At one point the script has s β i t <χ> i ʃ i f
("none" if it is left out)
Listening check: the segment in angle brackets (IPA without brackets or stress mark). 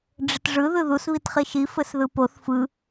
χ